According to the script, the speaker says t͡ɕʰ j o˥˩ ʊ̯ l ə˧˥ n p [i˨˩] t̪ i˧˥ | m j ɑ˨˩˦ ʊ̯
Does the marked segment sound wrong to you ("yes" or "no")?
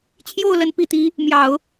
no